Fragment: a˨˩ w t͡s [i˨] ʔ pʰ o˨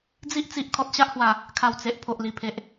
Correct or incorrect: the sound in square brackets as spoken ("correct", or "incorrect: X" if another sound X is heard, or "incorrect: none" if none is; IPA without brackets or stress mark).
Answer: incorrect: e˨